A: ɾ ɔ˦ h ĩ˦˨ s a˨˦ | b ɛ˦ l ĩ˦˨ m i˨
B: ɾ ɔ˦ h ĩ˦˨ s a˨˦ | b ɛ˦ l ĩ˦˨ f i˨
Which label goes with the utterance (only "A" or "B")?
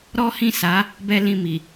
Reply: A